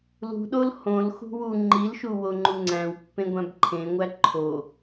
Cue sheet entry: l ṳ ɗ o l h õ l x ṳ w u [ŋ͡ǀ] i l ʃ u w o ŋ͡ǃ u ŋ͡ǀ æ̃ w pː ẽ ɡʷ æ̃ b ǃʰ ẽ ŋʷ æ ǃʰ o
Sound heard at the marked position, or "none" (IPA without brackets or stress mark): ŋ͡ǃ